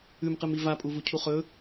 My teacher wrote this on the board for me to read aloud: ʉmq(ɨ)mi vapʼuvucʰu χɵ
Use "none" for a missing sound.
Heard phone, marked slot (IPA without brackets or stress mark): ɨ